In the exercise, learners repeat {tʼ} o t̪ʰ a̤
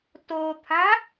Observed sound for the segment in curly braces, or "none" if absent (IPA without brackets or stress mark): t